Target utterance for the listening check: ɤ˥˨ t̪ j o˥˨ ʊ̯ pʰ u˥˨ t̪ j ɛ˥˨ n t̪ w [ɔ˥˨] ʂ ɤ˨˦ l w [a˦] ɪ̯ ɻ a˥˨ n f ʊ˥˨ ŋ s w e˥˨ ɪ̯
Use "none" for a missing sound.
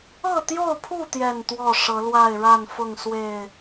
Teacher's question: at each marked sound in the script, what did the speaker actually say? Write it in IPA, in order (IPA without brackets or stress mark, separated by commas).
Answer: ɔ˥˨, a˥˨